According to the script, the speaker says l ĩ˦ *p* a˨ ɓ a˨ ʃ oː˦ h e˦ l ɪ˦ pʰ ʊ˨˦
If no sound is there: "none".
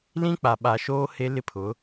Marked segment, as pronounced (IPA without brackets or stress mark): k͡p